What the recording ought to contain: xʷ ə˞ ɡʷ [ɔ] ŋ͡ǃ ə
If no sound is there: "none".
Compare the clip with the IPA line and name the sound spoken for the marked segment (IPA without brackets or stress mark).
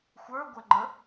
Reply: ə